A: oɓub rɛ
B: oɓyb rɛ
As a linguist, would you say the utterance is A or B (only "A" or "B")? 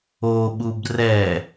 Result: A